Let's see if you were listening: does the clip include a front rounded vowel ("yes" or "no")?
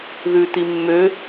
yes